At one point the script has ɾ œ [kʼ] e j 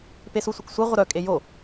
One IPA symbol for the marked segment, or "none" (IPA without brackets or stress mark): kʼ